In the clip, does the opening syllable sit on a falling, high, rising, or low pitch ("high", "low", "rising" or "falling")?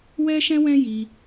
high